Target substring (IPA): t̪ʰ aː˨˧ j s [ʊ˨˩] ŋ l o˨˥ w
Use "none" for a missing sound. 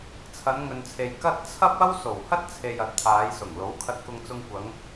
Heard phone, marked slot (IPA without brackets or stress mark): ʊ˨˩